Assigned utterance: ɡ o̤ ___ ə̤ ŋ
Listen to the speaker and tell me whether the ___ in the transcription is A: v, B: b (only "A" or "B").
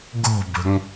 B